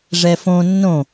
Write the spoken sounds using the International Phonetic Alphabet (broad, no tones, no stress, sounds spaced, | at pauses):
ʐ ɛ f õ nː õ